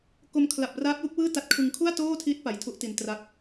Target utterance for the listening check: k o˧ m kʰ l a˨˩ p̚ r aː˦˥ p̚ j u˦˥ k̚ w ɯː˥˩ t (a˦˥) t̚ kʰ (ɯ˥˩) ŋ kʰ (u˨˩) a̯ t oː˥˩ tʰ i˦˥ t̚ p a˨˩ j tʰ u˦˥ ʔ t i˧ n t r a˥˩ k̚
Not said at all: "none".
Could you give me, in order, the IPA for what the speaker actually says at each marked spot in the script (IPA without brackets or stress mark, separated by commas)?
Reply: a˦˥, ɯ˧, u˥˩